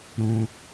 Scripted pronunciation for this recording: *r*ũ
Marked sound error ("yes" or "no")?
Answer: yes